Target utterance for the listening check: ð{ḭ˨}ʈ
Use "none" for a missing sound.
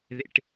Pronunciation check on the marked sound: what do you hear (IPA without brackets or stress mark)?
ḭ˦